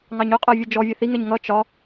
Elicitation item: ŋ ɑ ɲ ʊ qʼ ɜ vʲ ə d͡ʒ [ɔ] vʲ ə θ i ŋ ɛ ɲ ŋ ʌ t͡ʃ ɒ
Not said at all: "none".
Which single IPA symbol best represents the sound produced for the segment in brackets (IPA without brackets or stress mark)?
ɔ